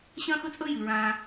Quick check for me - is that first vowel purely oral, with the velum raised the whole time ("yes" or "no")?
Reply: no